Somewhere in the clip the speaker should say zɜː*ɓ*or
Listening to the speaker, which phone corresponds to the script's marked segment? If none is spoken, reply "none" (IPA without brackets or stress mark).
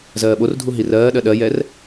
ɓ